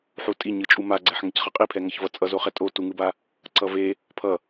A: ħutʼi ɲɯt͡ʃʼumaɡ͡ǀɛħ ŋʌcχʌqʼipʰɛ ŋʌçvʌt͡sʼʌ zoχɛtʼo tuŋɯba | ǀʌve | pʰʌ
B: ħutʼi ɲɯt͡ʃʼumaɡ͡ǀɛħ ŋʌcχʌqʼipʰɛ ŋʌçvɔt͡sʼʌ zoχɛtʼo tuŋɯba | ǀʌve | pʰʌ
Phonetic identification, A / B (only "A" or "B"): A